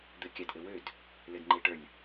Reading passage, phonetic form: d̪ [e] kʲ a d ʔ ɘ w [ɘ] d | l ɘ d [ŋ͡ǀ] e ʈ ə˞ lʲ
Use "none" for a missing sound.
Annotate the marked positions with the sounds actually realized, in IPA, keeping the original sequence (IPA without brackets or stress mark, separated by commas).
ɘ, ø, ŋ͡ǃ